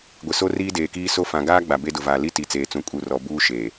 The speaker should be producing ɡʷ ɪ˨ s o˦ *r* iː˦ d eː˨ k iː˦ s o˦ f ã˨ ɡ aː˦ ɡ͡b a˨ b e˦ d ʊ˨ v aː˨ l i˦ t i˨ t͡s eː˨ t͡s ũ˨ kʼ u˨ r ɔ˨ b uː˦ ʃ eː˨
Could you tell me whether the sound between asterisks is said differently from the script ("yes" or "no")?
no